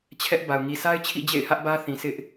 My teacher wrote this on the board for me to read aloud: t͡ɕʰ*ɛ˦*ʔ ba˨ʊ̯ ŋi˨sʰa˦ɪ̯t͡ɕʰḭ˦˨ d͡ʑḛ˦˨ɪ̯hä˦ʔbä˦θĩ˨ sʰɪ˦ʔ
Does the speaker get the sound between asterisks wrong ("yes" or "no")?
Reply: no